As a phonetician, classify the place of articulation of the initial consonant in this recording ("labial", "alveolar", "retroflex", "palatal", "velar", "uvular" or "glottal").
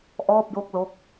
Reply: glottal